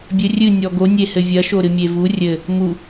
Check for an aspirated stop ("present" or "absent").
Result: absent